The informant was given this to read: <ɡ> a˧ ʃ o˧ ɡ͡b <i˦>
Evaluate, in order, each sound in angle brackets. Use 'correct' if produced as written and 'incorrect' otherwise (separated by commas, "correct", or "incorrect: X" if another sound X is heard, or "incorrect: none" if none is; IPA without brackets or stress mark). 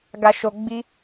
correct, correct